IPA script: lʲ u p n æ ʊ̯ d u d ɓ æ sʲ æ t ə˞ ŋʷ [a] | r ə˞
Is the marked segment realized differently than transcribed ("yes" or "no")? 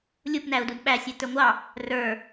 yes